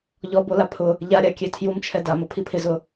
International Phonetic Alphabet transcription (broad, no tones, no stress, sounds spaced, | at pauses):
ʎ ɔ b o l a pʰ ʊ | ʎ a ɾʲ a kʲ e tʰ j u m t͡ʃʰ ɛ d a m ʊ pʰ i pʰ ɪ z ʊ